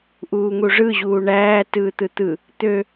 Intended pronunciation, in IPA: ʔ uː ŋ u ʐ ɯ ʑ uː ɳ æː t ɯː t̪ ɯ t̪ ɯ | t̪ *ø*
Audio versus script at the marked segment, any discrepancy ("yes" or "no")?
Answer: no